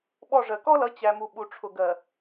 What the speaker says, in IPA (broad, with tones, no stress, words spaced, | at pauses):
ɓɔ˦˨ʐɜ˨ kɔ˦lʌ˨˦ t͡ɕæ˨mu˨ɓu˨ʈ͡ʂʰʊ˨ ɡɜ˨